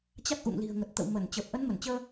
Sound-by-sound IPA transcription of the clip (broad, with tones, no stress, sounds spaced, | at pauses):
t͡ɕ a˦˥ k̚ ʔ ṵ˧˨ ŋ l i̤˨˩ ə̯ ŋ ə˨˩ t̚ t̪ ə̰˧˨ w m ə˧˩ n t͡ɕ əː˨˩ p̚ ʔ ə˨˦ n m ə˧˩ n t͡ɕ əː˧